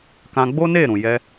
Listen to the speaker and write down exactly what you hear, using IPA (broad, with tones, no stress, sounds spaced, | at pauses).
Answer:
k ã˧ ɡ͡b o˦ n e˦˨ ɾ ũ˨ j ɛ˧